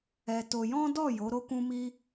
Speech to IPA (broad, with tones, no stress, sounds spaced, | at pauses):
ɛ˧ t o˧ j ɔ̃˦ d ɔ˦˨ j o˨˦ ɾ o˦ k ũ˦ m i˦